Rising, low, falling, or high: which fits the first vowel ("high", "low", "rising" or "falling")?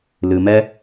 low